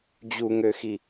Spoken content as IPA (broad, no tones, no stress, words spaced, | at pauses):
d͡ʑuŋøxi